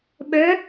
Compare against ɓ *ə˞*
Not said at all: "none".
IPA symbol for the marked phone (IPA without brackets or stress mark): ə˞